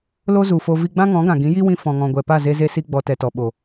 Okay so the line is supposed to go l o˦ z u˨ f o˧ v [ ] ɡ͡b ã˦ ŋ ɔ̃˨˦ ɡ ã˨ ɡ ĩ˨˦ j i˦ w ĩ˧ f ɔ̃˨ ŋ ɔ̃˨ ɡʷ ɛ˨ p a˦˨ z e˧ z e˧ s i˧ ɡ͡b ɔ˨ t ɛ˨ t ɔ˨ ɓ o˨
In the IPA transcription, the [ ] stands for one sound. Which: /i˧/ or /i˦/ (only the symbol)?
i˧